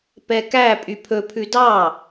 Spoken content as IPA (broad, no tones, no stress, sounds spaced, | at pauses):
p ɛ k æ pʼ y pʰ ɵ pʰ ʉ d ɑ